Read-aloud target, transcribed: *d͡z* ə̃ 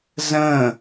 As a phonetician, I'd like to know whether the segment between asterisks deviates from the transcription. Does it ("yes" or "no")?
yes